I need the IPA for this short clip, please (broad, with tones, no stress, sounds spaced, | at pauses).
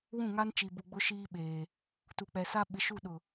w ũ˦˨ ŋ a˦ n t͡ʃ i˨ b u˨ ɡ͡b ʊ˦ ʃ iː˦ ɓ eː˨ | t u˨ k͡p ɛ˨ s a˦ ɓ ɪ˨ ʃ u˦˨ ɗ ʊ˨